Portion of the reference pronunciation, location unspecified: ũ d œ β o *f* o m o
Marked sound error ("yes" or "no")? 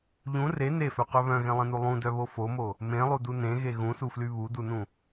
no